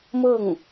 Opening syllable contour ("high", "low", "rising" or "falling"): falling